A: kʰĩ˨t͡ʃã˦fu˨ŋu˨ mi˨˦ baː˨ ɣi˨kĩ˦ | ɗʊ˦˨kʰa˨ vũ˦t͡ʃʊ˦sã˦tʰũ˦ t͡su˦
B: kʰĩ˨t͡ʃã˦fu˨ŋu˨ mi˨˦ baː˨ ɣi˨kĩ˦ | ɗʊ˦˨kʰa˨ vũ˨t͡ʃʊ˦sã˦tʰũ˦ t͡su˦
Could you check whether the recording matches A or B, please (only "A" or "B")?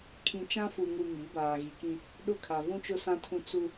A